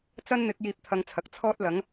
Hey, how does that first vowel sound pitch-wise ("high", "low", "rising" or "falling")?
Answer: high